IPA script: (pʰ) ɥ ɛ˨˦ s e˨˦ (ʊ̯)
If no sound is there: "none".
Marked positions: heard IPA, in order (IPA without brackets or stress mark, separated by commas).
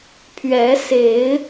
pʰ, ɪ̯